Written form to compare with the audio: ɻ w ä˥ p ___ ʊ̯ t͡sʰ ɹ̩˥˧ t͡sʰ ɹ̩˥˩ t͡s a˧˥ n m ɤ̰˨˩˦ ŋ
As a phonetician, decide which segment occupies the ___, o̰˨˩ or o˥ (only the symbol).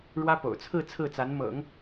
o̰˨˩